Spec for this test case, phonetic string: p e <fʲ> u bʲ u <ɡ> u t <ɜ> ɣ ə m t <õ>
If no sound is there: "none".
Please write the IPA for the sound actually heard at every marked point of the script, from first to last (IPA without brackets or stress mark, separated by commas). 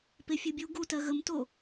fʲ, ɡ, ɜ, o